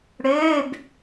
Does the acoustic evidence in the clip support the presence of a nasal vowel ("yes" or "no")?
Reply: no